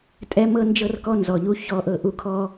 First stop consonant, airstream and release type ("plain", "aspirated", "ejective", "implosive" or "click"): ejective